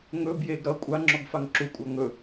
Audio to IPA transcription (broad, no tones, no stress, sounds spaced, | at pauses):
ŋ ɵ b j e ɡ ɾ ʌ kʷʼ a ŋ͡ǁ ɔ ɡ f a ŋ ǁ u kʷʼ a ŋ ɵ